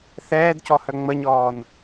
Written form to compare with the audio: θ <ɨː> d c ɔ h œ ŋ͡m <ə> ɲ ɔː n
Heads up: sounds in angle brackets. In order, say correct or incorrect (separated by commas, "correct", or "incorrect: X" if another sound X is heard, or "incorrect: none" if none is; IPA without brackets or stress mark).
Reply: incorrect: ɛː, correct